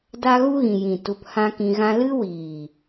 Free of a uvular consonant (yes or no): yes